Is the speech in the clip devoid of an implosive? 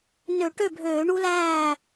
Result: yes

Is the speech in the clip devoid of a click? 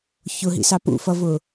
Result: yes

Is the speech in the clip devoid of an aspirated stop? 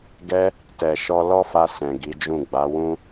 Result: yes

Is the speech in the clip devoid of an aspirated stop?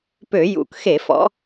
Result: yes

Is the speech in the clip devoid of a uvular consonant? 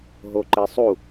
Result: yes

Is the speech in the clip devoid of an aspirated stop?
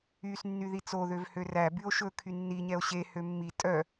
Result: no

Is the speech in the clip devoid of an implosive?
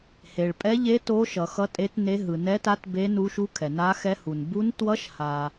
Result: yes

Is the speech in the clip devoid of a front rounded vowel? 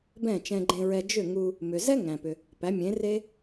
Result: no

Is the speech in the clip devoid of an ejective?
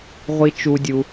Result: yes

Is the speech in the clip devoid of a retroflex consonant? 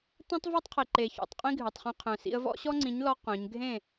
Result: yes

